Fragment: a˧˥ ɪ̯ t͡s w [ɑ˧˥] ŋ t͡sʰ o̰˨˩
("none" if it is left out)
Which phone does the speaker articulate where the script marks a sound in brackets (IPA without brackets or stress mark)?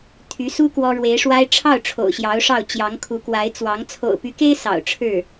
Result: ɑ˧˥